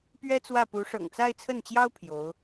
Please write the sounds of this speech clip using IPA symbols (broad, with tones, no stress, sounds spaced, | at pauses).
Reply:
p ɥ ɛ˥ t͡s w ä˥˩ p u˧˥ ʂ ɤ̰˨˩ ŋ t͡s a˥˧ ɪ̯ t͡sʰ ə˥˩ n t͡ɕ j ɑ˥ ʊ̯ pʰ j o˧˥ ʊ̯